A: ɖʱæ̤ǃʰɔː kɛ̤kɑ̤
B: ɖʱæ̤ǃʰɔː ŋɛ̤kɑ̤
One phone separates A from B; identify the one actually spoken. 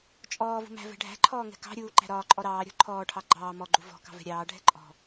B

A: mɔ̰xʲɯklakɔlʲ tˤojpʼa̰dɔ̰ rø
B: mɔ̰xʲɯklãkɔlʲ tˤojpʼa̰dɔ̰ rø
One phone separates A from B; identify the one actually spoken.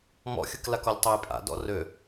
A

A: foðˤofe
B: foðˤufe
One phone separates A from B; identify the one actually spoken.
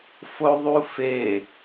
B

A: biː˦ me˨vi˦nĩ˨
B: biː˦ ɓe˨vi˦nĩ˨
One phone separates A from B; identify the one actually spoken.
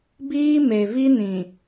A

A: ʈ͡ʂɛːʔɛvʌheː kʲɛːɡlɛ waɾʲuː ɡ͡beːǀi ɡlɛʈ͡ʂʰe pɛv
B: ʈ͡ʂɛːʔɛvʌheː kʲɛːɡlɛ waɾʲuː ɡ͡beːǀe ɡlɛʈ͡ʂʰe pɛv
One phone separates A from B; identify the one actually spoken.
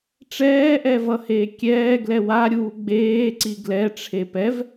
A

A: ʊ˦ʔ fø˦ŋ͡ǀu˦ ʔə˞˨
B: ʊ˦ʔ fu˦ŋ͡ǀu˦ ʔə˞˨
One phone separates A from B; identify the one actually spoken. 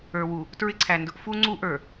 B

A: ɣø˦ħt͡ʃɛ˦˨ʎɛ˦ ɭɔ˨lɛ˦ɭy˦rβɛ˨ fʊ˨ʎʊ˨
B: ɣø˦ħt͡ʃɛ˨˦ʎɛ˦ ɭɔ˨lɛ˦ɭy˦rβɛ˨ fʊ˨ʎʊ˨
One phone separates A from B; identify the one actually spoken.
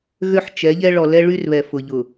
B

